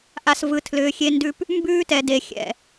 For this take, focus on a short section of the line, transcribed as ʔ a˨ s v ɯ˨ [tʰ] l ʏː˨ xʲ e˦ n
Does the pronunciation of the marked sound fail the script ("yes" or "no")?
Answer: no